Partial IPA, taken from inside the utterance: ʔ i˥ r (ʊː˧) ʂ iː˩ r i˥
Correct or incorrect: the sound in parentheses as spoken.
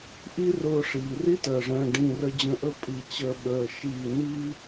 correct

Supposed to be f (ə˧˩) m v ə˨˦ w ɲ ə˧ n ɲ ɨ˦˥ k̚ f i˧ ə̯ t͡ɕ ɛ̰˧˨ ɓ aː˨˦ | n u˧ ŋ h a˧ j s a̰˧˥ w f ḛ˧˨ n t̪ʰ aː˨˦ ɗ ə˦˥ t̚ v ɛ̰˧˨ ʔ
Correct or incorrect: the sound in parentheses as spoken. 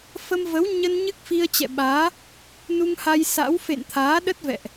incorrect: ə˧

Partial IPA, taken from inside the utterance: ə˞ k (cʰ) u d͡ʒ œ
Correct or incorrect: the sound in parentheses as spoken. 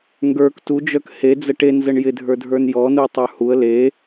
incorrect: t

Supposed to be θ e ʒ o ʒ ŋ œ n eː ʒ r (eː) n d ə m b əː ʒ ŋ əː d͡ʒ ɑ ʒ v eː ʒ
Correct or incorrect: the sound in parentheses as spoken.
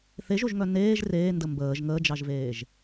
correct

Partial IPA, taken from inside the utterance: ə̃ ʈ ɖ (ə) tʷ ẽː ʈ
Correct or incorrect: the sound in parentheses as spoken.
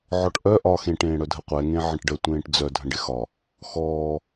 correct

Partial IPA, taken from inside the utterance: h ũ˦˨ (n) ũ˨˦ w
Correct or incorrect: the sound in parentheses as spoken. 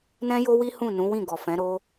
correct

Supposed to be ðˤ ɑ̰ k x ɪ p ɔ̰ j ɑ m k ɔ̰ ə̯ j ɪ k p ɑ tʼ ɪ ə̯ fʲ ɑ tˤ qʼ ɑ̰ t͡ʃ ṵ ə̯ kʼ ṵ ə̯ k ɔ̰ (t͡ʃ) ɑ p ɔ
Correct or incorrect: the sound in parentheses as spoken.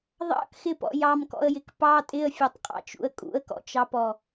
correct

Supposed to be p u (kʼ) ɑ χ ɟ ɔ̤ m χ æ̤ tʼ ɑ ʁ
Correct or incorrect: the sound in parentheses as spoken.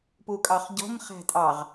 correct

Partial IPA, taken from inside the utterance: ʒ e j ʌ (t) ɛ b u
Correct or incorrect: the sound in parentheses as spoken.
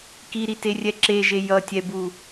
incorrect: tʲ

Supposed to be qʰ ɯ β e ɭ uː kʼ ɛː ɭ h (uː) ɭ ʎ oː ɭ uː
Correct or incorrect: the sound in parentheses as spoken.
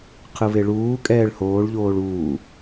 incorrect: oː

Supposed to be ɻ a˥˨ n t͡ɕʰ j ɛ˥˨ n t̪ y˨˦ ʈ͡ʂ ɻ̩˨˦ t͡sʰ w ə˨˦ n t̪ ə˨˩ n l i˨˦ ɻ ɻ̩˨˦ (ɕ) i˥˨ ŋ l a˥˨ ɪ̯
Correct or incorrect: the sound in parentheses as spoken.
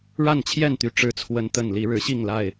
correct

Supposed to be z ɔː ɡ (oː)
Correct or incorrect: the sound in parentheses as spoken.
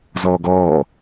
incorrect: ɔː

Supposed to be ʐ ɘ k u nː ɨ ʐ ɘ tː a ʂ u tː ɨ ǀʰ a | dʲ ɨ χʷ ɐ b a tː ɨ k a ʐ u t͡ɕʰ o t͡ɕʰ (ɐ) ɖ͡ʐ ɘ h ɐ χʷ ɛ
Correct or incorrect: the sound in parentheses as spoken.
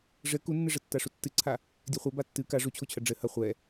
correct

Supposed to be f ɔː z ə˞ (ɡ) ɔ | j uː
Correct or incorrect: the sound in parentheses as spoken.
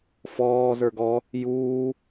correct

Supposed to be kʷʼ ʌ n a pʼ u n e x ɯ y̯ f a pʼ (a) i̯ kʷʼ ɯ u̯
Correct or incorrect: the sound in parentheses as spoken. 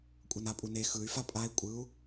correct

